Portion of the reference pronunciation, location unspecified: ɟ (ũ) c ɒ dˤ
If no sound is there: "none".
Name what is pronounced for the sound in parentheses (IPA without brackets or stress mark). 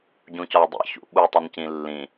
ũ